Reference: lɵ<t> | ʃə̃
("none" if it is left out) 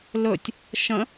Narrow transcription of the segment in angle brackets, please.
tʲ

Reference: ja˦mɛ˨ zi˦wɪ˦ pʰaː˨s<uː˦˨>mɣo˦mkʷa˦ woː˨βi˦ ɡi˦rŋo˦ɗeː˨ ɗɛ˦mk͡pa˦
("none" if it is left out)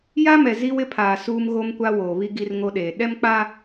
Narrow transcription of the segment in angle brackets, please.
uː˦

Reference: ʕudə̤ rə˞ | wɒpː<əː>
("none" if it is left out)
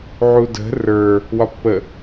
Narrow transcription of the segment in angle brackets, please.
ə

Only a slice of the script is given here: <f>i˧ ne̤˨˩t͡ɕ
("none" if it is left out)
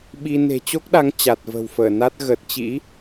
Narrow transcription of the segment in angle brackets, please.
ɓ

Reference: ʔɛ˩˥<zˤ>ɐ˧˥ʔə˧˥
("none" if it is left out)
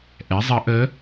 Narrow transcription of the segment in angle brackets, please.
zˤ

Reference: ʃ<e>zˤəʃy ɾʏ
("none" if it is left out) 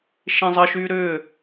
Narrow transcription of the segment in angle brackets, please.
ẽ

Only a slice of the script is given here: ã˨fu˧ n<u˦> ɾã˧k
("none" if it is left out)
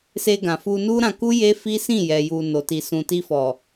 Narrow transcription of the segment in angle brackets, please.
u˦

